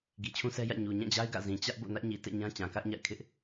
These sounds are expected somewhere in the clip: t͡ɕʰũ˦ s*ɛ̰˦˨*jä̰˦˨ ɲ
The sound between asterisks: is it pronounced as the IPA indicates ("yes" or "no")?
no